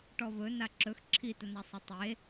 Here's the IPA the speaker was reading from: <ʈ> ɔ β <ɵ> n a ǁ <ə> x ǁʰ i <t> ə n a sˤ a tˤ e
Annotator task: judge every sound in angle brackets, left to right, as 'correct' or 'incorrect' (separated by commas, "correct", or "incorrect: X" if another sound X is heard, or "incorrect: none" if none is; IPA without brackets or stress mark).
correct, correct, incorrect: ɵ, correct